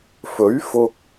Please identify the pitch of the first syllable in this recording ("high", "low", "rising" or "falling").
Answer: rising